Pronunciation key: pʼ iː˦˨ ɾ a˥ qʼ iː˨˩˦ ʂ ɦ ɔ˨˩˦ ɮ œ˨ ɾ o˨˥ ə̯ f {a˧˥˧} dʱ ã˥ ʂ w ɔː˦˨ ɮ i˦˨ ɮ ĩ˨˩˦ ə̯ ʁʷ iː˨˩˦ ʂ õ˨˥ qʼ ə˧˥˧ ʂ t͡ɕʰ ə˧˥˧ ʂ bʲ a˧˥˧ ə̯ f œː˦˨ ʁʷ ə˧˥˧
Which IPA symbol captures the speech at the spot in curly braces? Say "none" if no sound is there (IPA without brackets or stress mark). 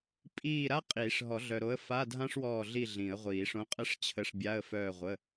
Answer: a˧˥˧